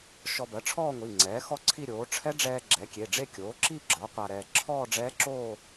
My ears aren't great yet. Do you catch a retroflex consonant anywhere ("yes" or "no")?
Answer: yes